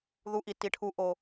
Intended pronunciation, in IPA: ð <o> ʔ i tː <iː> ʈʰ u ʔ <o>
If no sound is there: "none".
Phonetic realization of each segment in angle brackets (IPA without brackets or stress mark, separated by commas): u, i, o